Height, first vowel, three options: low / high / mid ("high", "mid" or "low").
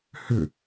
high